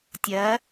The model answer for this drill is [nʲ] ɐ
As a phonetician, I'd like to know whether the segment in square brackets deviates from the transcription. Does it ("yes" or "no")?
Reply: yes